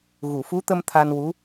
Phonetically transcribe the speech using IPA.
ɣu˨˩˨fu˧˥t̪ə˧m t̪ʰa˧nwu˧˥

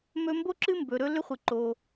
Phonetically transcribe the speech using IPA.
mɵ˦ mbo˦ǁɨ˦ mbɵ˨ ɾɵ˦lʏ˦χʷɨ˨ ǃo˨

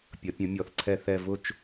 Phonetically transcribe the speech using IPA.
pʲʌ˨˥pʲə̃˨˥mʲɔ˨˥θǀʰɛ˥˧ θɛ˥˧ vʊ˥˧t͡ʃ

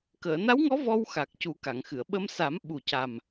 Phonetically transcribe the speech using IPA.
kəː˨˩˨na˧˥wŋɔ˧˥ vɔ˧wxa˨˩k̚ cu˨˩˦ka˨˩˨ŋxɨ˨˩˨ə̯ ɓə˧msa˨˩˦m ɓu˨˩ca˨˩m

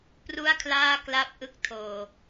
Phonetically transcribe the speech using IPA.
pru˥˩a̯kʰlaː˥˩kla˥˩p̚ʔɯ˥˩k̚ tʰoː˨˩

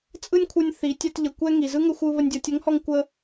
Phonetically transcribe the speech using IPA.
t͡sʼɯ˥nʲkʷʰɯ˧nʲ θi˩˧tʲɛ˧t ʎə˩kʷɛ˥ŋi˩ zɯ˥ŋə˧xʷɯ˧ βə˧nʲdʲɔ˩˧tʲə˧˥ŋ hɔ˥ŋkʷə˥

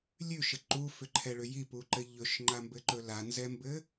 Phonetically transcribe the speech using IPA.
lʲʉʃə ǃufʏǃʰɛɭʏ jipuǃɘ ʎɵʃŋ͡ǃambɘǃɵ lanzɛmbɘ

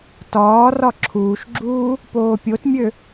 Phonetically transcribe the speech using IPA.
tɒː rɒǁʰuːʃɡ͡ǁuː | poːpʲotmʲø

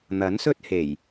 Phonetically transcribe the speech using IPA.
n̪ɐ˨˥nsɵ˥t̚he˨˩j

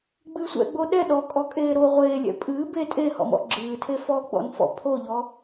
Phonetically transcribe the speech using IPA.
ɡ͡bɨːsʷɛ̰ɡ͡bo ɗɛ ɗɔkʼɔkʼeː ɾo ʁʷeːlʲɛ̰ pʼɨː be tʼehɔ̰mɔ̰ ɡ͡ǁɨːtʰe fɔɡ͡bɔ̰nfɔ̰ pʰoʎɔ

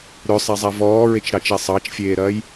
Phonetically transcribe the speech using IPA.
ɾœsˤazˤa vɔːɹet͡ʃɾɑt͡ʃɛ sˤɑt͡ʃfʲeːɾɐːj

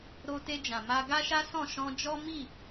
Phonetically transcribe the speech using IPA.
ɾo˧te˧d͡ʒã˨ ma˧ɡa˦ʃa˦sɔ̃˦˨ ʃɔ̃˧d͡ʒɔ˦mi˦˨

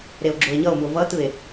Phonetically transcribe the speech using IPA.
ɾeo̯ɡ͡ǁoe̯ɲʌo̯muo̯ vʌtɯe̯

